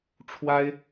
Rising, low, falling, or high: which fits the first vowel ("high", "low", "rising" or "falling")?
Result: high